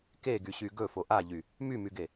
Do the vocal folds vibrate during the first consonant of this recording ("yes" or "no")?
no